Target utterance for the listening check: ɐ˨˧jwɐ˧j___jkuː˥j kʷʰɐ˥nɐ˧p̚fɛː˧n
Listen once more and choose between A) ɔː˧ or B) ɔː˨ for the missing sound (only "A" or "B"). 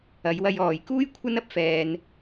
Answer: B